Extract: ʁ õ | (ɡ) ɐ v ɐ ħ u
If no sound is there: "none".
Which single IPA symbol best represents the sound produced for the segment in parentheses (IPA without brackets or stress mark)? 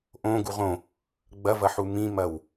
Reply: ɡ͡b